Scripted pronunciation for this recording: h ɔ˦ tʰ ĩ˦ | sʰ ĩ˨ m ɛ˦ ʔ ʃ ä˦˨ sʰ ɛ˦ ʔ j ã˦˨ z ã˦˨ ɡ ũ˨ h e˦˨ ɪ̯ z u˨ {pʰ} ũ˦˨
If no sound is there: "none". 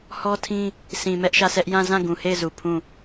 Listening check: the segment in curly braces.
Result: pʰ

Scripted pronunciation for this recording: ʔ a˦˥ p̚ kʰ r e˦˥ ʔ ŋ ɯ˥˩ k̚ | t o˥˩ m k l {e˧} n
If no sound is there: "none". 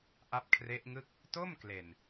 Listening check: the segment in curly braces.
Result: e˨˩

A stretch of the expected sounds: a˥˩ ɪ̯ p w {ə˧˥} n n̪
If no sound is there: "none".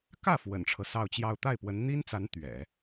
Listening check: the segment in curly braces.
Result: ə˧˥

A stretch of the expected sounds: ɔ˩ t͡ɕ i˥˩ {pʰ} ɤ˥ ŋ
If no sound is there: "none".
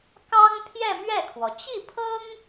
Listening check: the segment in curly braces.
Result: pʰ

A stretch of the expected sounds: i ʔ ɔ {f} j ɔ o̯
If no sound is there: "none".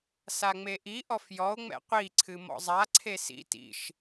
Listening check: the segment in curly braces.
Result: f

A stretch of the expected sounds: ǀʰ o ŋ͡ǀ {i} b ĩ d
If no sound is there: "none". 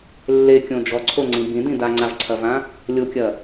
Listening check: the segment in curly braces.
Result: ĩ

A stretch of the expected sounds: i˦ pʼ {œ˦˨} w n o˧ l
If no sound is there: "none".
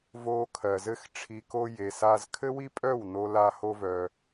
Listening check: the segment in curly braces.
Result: œ˦˨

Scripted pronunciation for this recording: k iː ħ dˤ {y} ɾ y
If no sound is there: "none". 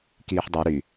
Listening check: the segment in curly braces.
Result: y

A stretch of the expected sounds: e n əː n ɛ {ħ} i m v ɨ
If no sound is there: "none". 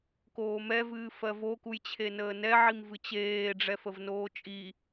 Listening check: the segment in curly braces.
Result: ʕ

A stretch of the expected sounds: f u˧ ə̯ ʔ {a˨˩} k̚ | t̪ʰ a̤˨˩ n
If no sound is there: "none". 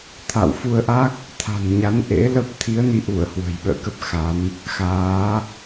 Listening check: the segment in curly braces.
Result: a˦˥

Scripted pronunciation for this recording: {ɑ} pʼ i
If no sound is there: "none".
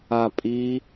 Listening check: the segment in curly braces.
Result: a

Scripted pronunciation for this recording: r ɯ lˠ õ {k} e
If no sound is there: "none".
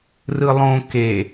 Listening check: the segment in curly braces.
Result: k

